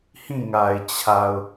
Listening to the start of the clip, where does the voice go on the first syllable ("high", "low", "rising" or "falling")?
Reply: falling